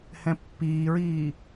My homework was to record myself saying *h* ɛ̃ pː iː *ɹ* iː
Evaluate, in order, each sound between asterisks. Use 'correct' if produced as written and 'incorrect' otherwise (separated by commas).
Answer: correct, correct